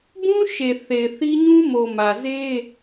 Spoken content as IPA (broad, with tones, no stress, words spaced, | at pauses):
bũ˦ ʃe˨θe˨ɪ̯θi˦ ɲũ˦mo˨mä˨ze˦